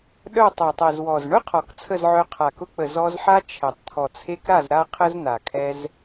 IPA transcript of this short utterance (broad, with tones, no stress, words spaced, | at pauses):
ɗœ˦˨tˤœ˨tˤɛ˨z wɔ˨z ɳʊ˦ qʰɔ˨kt͡sʰə˦˨zʕœ˧ qʰa˨kʊ˧k͡pə˨ zɔ˧zħa˦t͡ʃʰɛ˨tˤ t̪ʰɔ˨t͡sʰe˧kɾa˦˨z ɾa˦qʰə˦zna˨ kʰɛ˧z